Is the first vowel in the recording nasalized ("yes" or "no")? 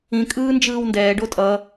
yes